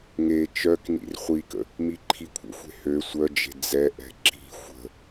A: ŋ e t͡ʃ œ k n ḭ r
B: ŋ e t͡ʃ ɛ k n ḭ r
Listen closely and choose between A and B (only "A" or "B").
A